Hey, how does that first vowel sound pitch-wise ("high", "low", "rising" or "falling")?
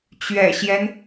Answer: low